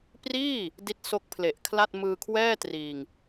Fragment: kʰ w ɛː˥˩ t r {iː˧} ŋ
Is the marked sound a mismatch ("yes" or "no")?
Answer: no